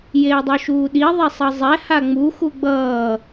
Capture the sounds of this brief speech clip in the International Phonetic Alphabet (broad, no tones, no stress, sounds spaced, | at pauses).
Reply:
j eː dˤ o ʃ uː ɗ i ðˤ e sˤ ʌ zˤ ɛ h a ŋ͡m u x u ɡ͡b ʌː